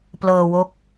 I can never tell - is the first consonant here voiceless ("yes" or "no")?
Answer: yes